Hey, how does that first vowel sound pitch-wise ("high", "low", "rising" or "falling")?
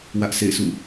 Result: high